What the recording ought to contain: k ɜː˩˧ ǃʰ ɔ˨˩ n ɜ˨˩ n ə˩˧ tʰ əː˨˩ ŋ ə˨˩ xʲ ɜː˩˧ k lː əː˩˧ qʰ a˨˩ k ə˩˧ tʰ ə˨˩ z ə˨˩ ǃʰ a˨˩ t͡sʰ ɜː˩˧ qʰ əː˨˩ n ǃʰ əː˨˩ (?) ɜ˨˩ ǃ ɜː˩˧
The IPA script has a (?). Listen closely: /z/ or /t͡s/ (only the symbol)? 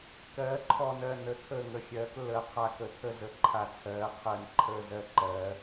z